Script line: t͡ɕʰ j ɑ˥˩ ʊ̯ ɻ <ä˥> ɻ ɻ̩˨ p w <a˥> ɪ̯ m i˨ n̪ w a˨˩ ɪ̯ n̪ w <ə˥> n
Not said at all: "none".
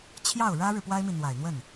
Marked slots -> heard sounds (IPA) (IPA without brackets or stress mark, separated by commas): ä˥, a˥, ə˥˩